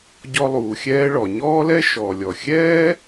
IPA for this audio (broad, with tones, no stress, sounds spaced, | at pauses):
ɟ ɔ˧ lˠ uː˩ xʲ ɛː˧ ɭ ɔ˩ ɲ ɔː˥ l ɛ˥ ʃ ɔː˩ lʲ ɔ˩ xʲ ɛː˥